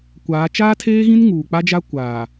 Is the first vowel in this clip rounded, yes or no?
no